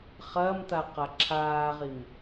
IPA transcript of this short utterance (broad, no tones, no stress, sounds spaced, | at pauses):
χ ɐː m t̪ a q a ǁʰ aː ʁ i m